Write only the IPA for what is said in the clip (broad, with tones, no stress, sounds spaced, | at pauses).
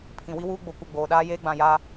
pʰ ĩ˨ w i˦ w uː˦ ɡ͡b o˨ kʷ ɪ˦˨ ɡ͡b oː˨ ɗ aː˦ j eː˦ ɡ͡b ã˨ j aː˦